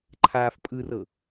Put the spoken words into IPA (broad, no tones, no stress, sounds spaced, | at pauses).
ǃʰ aː f pʼ ɯ r ɤ